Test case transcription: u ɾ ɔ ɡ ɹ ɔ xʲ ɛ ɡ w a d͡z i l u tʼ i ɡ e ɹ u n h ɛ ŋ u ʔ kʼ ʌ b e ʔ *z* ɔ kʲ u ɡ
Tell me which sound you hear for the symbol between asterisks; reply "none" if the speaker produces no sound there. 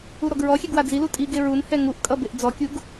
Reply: d͡z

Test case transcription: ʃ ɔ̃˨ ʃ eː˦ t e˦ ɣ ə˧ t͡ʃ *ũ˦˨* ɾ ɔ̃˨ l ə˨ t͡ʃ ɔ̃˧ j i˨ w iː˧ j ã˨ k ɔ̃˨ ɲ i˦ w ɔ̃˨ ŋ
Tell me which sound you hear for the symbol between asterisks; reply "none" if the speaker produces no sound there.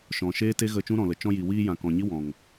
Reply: ũ˦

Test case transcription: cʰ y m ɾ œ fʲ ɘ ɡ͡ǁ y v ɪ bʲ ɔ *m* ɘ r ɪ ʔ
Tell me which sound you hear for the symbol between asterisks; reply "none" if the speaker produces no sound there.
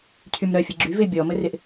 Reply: m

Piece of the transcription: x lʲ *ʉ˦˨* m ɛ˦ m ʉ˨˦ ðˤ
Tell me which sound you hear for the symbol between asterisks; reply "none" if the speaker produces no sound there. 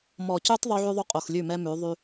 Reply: ʉ˦˨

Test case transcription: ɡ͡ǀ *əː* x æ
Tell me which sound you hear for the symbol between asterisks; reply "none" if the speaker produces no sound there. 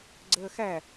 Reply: əː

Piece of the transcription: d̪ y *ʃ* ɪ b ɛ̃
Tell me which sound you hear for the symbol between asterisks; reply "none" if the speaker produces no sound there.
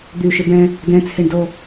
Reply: ʃ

